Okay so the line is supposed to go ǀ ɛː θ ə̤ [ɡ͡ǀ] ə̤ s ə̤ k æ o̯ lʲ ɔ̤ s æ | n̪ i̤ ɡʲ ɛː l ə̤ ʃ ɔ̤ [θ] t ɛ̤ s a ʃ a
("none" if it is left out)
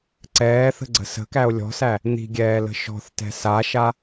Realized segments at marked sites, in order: ɡ͡ǀ, θ

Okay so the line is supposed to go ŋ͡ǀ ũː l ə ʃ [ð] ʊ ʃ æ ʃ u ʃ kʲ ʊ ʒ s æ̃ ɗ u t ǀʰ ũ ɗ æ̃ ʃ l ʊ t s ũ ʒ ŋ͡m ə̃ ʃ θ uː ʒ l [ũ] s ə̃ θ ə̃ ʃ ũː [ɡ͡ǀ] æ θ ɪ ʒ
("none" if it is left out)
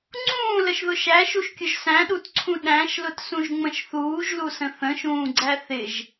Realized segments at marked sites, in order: ð, u, ɡ͡ǀ

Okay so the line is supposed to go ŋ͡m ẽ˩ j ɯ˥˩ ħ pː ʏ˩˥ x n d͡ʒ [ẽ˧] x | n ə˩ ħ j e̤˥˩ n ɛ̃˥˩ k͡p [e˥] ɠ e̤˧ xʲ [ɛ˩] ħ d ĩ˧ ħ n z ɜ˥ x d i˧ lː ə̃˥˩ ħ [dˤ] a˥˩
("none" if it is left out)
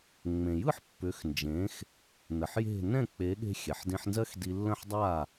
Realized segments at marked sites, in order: ẽ˩˥, e˩˥, ɛ˩, dˤ

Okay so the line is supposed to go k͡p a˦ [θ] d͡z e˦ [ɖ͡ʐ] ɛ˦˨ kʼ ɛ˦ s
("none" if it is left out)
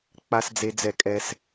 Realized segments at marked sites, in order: s, d͡z

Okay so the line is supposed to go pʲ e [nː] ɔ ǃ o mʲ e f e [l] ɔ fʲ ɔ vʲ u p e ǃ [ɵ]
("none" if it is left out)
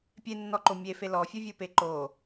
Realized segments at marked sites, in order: nː, l, o

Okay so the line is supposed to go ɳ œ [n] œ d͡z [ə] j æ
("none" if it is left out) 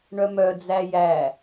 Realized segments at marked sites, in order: m, æ

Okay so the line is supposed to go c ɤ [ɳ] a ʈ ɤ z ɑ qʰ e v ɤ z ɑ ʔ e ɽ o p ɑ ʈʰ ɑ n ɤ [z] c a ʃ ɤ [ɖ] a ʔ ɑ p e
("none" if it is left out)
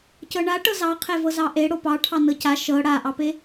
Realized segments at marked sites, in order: ɳ, none, ɽ

